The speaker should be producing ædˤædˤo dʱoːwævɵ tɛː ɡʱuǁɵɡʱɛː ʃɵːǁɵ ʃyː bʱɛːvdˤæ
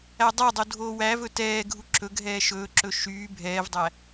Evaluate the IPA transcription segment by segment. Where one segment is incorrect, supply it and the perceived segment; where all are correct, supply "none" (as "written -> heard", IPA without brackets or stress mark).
none